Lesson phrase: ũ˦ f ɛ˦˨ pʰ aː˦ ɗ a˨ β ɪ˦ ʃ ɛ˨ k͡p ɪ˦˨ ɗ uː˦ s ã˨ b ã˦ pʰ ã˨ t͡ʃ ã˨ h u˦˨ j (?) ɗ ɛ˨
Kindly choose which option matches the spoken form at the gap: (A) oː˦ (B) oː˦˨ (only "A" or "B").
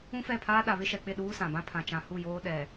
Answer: A